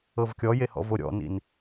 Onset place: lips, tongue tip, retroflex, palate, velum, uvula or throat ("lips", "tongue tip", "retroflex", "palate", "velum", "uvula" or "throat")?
lips